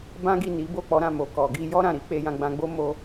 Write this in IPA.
bã˦ɡi˦˨ ni˨˦bo˦˨k͡pɔ˨˦ ɾã˦˨mo˨kɔ˨ ɡi˧ jɔ˦ ɾã˦˨ɾi˨˦ k͡pe˧jã˧ɡ͡bã˧ɡ͡bo˦ mo˧

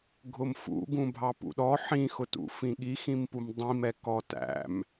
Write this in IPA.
ɡʱʊmfṵ ɡũbʱɑpṵɗɔ ħĩxʊtṵ fĩɠixĩm pumdˤĩmɛ kɔtæ̰m

